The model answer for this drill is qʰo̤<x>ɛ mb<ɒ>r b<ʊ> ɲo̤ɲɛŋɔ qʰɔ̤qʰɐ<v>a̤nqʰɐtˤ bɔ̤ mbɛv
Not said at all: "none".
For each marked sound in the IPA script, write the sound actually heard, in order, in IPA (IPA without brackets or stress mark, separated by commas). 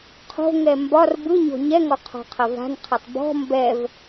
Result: ŋ, ɒ, ɯ, v